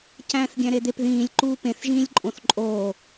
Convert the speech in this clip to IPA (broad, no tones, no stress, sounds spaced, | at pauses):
c æ̃ː θ ɡʲ æ̃ ɾ e d̪ e p ð ĩː lʲ ǃ uː p ẽ θ ʒ ĩː lʲ ǃʼ õ θ ǃʼ oː